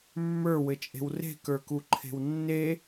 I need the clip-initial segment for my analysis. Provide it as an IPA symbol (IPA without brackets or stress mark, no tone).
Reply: mː